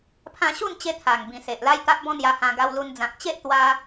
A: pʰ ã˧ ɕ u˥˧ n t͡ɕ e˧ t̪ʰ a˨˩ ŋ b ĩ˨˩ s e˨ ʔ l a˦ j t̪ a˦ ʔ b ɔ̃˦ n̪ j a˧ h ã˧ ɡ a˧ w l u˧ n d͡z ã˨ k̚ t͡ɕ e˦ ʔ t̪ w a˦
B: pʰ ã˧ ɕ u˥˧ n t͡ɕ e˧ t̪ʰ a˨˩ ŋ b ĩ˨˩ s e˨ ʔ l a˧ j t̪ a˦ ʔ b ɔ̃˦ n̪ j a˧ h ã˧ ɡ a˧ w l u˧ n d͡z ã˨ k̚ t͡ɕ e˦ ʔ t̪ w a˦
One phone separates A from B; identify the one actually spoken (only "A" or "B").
A